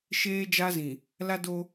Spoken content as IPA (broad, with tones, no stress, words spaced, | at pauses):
ʃeː˦d͡ʒa˦zĩ˨ | la˦do˦